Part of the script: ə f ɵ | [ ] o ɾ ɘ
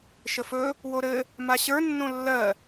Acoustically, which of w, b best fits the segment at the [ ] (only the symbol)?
w